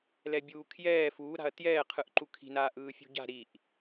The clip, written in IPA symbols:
lɛbʲuːkʰjɛː fuːɾa̤ɐ̯ tjɛːqʰɯʔǃu kʰi̤naː ʔɯːfʲṳɟa̤ ɾiʔ

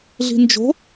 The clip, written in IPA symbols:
ɮi̤nd͡ʒo̤

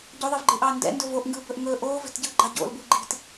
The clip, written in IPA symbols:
ɟoðˤivɡ͡ǃɯʔɑː ndɛ̰ndɵ voʔŋɡɯːbɵʔ ŋɵː ʔoːvɛ̤tɟɯːɡ͡ǃɑ ɟo̰lbɯ ɡ͡ǃi̤t

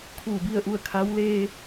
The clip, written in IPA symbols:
kʰuː˧˩bi˥˨ə̯ʔu˥˨ə̯ kʰa˧˥w leː˧

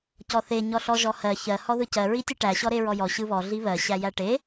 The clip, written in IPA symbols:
cɔθe ɲɔɬɔʒɔhɜ çɜ hɔðɯcɜ ɹitʲɯʈæ ɕɔɾeɹɔjɔ ɕɯβɔ ɮiβɜ ɕæjæʈe

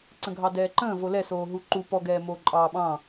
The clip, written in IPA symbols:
ǀə̃ɡʱɑdɛːǃə̃ː volɛsoː ɦuǃu pɔɡɛː moːǃʼɑːɓɑ̃

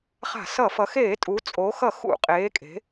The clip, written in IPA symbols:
χa̤˧˩˧sʌ˧˩˧ fʌ˩˧xeː˧˩˧tʼu˩˧ t͡sʼo˩˧xʌ˧˩˧ xṵ˧˩˧qʼeː˩˧kʼe̤˩˧

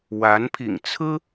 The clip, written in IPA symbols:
wa˧˥npʰḭ˨˩ŋt͡sʰɹ̩˥

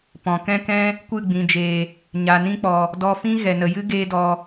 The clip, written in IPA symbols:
pɔ̃˨kɛ̃˦kɛ̃˦ | kʷɨ˦˨ɡ͡bĩ˨d͡ʒeː˨ | ɲa˨nĩ˦k͡pɔ˨ | dɔ˧fĩ˦ ɣɛ˨nə˨jɨ˦ ɡeː˦dɔ˧

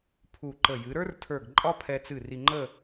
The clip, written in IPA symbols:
pʰu˧˩ǃə˧˩ jɨ˩˧ɾə˞˥rtʰə˞˧˩ɡ ǃʼɒ˥pʰɛ˧t͡sɨ˧˩ ri˧ŋ͡ǃə˥˧

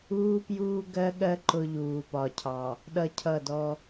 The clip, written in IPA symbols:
uː˦pjuː˦ɡɜ˦ɠɜ˦ ǃʊ˦ʎuː˨pɒ˨cʰɑ˨ | ɗʌ˦cʰʌ˦˨dɔ˦

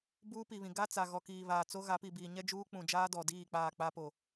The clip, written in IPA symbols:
buː˦pi˨βĩ˨ ɡa˦ t͡sa˨ ɣɔ˨kiː˨βaː˨t͡so˦ ɣa˨˦pi˨biː˨ ɲɛ˦ d͡ʒuː˦k͡pũ˨d͡ʒaː˦ dɔ˨diː˦˨ k͡paː˦˨k͡pa˦po˨

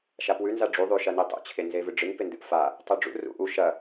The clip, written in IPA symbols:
ʃapwʉ nzaɖ͡ʐu ðˤʉ ʃɐnitˤṵ t͡ɕʰenzevɨɖ͡ʐɨŋ pendɨʔfa | tˤuɖ͡ʐṵ rṵʔu ʃɐ

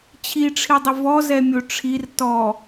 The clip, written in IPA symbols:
t͡ɕʰiʈ͡ʂʰidˤɪ vɔzɛmʲo ʈ͡ʂʰir tɔ

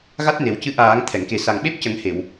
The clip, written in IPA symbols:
ɣa˦˥t̚ne˨˩˦wcɨ˧˥ ʔaː˨˩˦ŋ t̪ʰɛ˨˩˨ŋke˨˩ sa˨˩ŋɓe˦˥p̚ cə˨˩˦ŋhe˨˩˨w

